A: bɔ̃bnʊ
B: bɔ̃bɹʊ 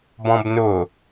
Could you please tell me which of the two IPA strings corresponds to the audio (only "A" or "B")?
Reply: A